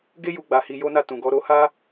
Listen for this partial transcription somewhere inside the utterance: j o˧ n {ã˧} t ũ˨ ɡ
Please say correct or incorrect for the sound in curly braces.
incorrect